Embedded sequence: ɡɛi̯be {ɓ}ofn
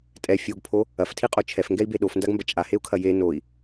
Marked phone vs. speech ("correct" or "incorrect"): incorrect